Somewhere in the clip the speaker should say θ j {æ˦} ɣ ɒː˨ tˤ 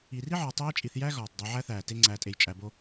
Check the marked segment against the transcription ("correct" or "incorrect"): correct